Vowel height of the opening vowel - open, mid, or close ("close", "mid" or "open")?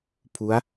close